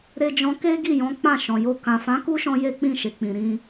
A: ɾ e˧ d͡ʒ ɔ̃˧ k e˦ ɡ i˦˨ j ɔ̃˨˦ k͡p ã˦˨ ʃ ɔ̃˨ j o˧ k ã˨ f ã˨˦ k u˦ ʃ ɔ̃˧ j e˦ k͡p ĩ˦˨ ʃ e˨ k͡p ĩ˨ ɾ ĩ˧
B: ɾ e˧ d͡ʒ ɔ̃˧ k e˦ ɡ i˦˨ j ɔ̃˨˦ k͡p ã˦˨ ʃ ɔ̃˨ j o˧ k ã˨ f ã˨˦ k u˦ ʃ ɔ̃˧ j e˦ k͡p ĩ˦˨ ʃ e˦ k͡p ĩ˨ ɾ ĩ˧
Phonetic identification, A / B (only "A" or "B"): A